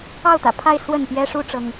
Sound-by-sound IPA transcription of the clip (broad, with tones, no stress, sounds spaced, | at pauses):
ɑ˥˩ ʊ̯ t̪ ä̰˨˩ pʰ a˥˧ ɪ̯ s w ə˥˩ n p j ɛ˥ ʂ u˥ ʈ͡ʂ ɤ˥ ŋ